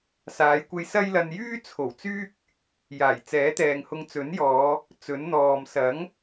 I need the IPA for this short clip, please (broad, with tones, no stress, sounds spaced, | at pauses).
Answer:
s aː˨˧ j kʷ e˧ j s ɐ˥ j l ɐ˧ n j yː˥ t͡sʰ o˨˩ w t͡s yː˥ k̚ | j aː˨˩ j t͡s ɛː˨˥ t̪ ɛː˨ ŋ h ʊ˧ ŋ t͡s ɵ˨˥ n j ɔː˨˧ | t͡s ɵ˨˥ n n̪ ɔː˨ m s ɐ˨˥ ŋ